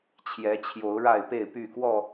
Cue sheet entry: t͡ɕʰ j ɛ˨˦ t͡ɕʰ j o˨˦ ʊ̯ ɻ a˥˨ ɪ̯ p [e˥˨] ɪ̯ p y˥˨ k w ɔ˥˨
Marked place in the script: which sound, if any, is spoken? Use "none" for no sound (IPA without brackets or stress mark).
e˥˨